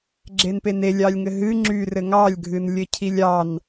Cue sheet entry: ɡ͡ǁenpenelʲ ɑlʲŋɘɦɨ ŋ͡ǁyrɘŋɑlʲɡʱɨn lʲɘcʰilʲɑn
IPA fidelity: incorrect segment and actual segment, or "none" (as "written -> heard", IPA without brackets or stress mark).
none